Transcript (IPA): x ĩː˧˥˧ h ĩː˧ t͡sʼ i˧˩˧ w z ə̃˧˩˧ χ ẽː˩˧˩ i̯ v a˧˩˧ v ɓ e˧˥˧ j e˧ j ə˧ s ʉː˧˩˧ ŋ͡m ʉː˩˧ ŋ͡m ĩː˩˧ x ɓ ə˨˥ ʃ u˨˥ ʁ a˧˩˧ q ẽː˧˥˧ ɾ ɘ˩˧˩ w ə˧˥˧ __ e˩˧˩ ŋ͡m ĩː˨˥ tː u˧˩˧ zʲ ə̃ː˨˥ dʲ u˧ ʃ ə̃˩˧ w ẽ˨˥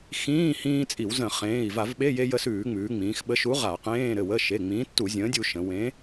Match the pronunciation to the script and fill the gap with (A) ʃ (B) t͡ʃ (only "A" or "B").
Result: A